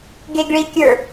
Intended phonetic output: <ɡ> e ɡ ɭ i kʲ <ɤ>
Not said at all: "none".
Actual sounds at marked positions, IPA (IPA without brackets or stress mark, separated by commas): ɡ, ə˞